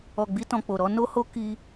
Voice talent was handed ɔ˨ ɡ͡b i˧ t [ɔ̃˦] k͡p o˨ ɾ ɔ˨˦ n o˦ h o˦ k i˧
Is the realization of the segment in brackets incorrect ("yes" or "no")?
yes